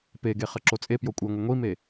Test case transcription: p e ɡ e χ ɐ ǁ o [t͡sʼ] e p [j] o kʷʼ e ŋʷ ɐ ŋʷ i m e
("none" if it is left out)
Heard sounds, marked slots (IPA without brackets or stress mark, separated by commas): t͡sʼ, j